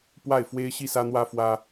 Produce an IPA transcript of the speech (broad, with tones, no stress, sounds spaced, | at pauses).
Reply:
p w a˥˩ ɪ̯ f w e˥ ɪ̯ ɕ i˥˩ s ä˥ n̪ w ä˥ f w ä˥